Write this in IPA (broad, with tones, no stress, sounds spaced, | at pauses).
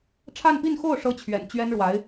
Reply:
ʈ͡ʂʰ a˥˧ n p i˥˧ n x o˥˩ ʊ̯ ʂ ɤ˥ t͡ɕʰ ɥ ɛ̰˨˩ n t͡ɕ ɥ ɛ˥ n ɻ w a˧˥ ɪ̯